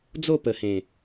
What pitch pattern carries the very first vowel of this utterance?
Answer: falling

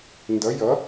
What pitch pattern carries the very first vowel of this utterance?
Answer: rising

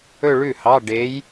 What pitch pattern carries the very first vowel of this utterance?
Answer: falling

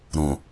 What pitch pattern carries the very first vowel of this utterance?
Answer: low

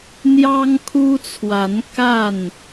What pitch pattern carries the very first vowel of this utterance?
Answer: high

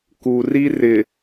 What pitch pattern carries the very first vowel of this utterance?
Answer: low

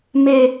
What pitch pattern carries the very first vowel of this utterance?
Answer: falling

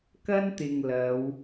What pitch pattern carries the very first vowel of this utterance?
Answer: high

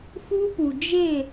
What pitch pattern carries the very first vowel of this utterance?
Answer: high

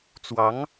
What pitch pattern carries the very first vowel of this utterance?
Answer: rising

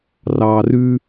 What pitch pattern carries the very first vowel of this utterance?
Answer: low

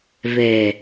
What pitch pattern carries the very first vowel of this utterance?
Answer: low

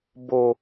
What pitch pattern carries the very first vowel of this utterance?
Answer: low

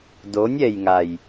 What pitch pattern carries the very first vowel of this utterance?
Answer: rising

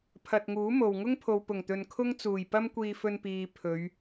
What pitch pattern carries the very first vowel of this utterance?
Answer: low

